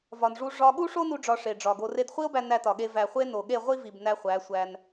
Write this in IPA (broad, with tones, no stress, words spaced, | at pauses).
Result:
vɒ˨nʐu˧ ʐɒ˧ ɠu˦ʂo˦nu˧ ɖ͡ʐɒ˧ʂe˨ɖ͡ʐɒ˨ɡo˧ re˧dχʷi˦o̯bæ˧ næ˧tɒ˨ɠe˧ væ˨χʷe˧ no˨ɠe˦˨ʁʷi˦vi˨b næ˧χʷæ˨˦sʷæ˧n